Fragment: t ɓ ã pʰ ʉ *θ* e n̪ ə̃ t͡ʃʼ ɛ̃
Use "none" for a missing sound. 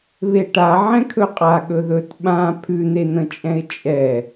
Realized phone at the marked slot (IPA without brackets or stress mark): n̪